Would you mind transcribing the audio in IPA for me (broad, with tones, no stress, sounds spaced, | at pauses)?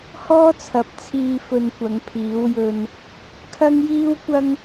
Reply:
h ɔː˥ t͡sʰ ɐ˨˥ p̚ t͡sʰ iː˧ f ɵ˧ n kʷ ɐ˨˧ ŋ pʰ iː˨˥ w j ɵ˧ n | kʰ ɐ˥ ŋ j iː˥ w kʷ ɐ˥ ŋ